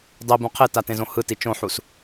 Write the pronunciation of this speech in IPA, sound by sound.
dˤ i b ũ qʰ e t a t ẽ z õ h ɯ t i t͡ʃ õ ħ u s

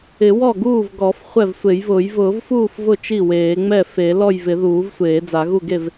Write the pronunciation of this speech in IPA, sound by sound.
ɪ˨˩˦ w ɔ˥˩ ɡ uː˥˩ v ɡ ɔ˨˩˦ f χʷ ɛ˥˩ v sʷ e˨˩˦ j v ʊː˨˩˦ j v ʊː˨˩˦ v f uː˥˩ f v ʊ˥˩ t͡ʃ i˥˩ w eː˨˩˦ ŋ͡m ɛ˥˩ f e˨˩˦ l ɔ˥˩ j v ɪ˨˩˦ ð uː˨˩˦ v sʷ eː˨˩˦ d͡z a˨˩˦ ɣ u˥˩ ɡ e˥˩ v

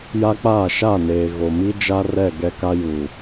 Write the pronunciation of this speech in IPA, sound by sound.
j a˦ k͡p aː˦˨ ʃ a˦˨ n eː˨ ɣ o˨ m i˦ d͡ʒ a˦ r ɛ˦˨ ɡ ɛ˦ k a˦ j uː˨

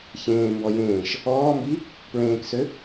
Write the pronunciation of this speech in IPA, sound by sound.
ç ẽː m b ɔ j ẽː ʃ | ɔː m b i | p ɹ ẽː k s ø

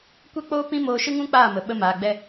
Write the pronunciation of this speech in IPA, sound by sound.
kʷ ɛ˦ k͡p oː˦ p ĩ˦ m oː˧ ʃ ɨ˦ ŋ ũ˦ k͡p aː˦˨ m ə˨ ɓ ə˧ m aː˨ ɡ͡b ɛ˧

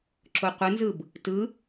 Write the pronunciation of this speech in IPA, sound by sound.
ǁ o qʷ ɯ n z ɯ b | t ɯ

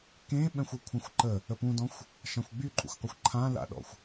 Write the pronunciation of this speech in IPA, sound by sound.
k ẽ ɓ ɛ̃ xʷ ʌ kʷʰ ã xʷ ǃ ə | ə p ũ d ɔ̃ xʷ | ʃ ã xʷ ɡ͡b y ǃʼ ṵ xʷ qʷ ʌ xʷ ǃʰ ã l a̰ ɗ ɔ̰ xʷ

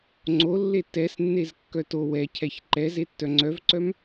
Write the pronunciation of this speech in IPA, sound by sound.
ŋ͡ǀ o lː e t ɛ s nː e z kː œ t o w ɛ cʰ ɛ ç ǃ ɛ z e tː œ ŋ͡ǀ œ v ǀ œ m

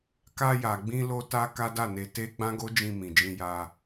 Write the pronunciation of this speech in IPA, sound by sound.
k a˧ j a˨ ɡ͡b ĩ˧ l o˦ t a˦ k a˦ d a˦˨ n e˧ t e˦ ɡ͡b ã˦ ɡ o˦ d͡ʒ ĩ˧ m ĩ˨ d͡ʒ ĩ˧ j a˧

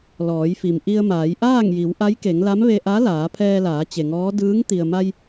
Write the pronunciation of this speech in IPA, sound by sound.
l ɔː˩˧ j f i˩ m ʔ i˧ ə̯ m aː˩˧ j ʔ aː˥˨ ŋ j i˩˧ w ʔ a˧˥ j k e˩˧ ŋ l a˧˥ m ʋ e˧ ʔ a˧˥ l aː˩˧ pʰ ɛː˧ l aː˩˧ t͡ɕ e˩ ŋ ɔː˧˥ d ɯː˧˥ ŋ t̪ i˩ ə̯ m a˧ j

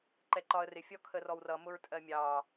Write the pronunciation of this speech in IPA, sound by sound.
ǃ ɛ ǃ ɒ ə̯ r ɪ fʲ ɔ kʰ ə r ɔ w r ʌ m ʊ ɹ tʼ ɜ mʲ ɑ

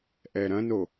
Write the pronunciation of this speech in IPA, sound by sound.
ʔ ɛ ɾ ɐ̃ n o

